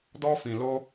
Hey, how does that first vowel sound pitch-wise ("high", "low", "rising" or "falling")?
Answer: high